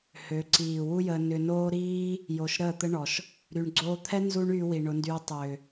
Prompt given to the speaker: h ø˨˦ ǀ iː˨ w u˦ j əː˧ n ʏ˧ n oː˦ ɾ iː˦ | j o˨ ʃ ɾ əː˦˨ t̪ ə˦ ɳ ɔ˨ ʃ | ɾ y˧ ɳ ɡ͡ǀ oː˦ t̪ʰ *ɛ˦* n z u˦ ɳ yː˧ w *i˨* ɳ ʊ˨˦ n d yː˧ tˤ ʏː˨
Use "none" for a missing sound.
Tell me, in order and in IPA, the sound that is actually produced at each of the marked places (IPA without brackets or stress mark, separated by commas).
ɛ˦, i˨